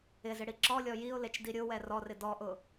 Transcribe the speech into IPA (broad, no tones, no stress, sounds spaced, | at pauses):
ɪ z ɪ ɽ i ǁ ɔ lʲ ɔ j i ʊ̯ l e t͡ʃ d i ɾʲ ʊ w ɛ r ɔ r ɪ d ɔ ʔ ʊ